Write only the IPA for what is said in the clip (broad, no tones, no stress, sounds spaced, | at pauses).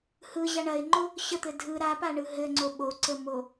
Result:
h ɯ ʑ a ɳ ɐ ɪ̯ ŋ͡ǃ o | ɕ ə t̪ ɘ dʱ ɯ ɾ a p a ɳ ɯ ɦ ɘ ŋ͡ǀ o ɓ o ǀ ə m o